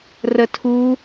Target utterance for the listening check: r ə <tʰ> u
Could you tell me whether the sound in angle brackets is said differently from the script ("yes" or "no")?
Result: no